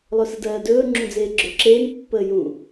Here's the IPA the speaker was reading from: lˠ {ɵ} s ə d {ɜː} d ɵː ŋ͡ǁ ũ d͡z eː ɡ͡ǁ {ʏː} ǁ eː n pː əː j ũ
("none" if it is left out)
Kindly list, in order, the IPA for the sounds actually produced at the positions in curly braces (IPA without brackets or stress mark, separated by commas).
ɵ, ɜː, ʏː